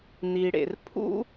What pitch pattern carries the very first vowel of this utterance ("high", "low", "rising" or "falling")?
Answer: low